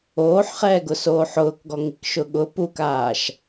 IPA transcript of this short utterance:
oː ħ χ ɛː ɡ ʊ s oː ħ ʊː k ɡ ɔ ŋ i k ʃ ʊ ɠ ʊ p u k aː ʃ

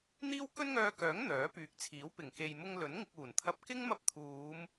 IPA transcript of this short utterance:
n̪ iː˥ w k ɵ˥ n ŋ œː˧ k œː˨˥ ŋ n̪ œː˨˥ p yː˨ k̚ t͡sʰ iː˨˥ w p ɪ˨˩ ŋ k e˨ j m ʊ˧ ŋ l ɵ˨˥ n ŋ ɪ˧ k̚ uː˨˩ n t̪ʰ ɐ˧ p̚ k ɪ˥ ŋ m ɐ˧ p̚ t̪ʰ uː˨˧ m

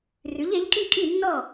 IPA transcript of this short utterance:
r ʉ˩˥ ʎ e˩˥ ʎ kʼ i˥˩ kʼ i˥˩ nː ɔ˥˩

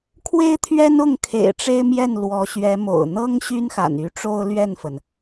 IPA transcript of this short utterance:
kʰ w e˥ ɪ̯ t̪ʰ ɥ ɛ˥ n ʊ˥˩ ŋ kʰ ḛ˨˩ ɪ̯ ʈ͡ʂ e˥ ɪ̯ m j ɛ˥˩ n l w ɔ˧˥ ɕ ɥ ɛ˧˥ m o̰˨˩ ʊ̯ n̪ ɤ˥ ŋ ɕ y˥ n x a̰˨˩ n y˧˥ ʈ͡ʂ o˥ ʊ̯ l ɥ ɛ˥˩ n f ə˩ n

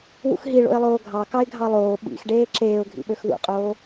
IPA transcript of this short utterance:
w ṵ x ɦ i ɭ o̰ ɪ̯ lˠ oː ɡʱ ɑ k ɑ ɪ̯ ɡʱ ɑ lˠ oː ɓ ḭ x ɖ eː ǁ eː ʊ̯ ɡʱ ḭ ɓ ø x ð ṵ qʼ oː

